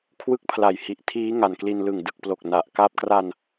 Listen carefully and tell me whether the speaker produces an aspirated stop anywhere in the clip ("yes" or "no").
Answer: yes